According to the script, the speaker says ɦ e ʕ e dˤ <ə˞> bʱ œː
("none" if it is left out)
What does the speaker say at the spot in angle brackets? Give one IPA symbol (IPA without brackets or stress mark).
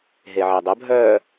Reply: ə